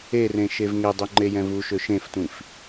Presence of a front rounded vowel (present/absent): present